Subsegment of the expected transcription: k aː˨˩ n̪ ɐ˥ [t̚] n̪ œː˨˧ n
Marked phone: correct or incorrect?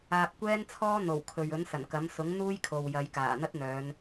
correct